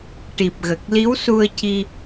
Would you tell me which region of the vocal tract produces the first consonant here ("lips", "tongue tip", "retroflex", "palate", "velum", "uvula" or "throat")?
retroflex